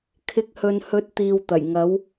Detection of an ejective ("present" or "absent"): absent